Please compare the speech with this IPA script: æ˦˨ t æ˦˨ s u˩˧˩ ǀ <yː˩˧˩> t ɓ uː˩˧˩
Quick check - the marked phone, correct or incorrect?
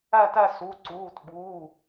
incorrect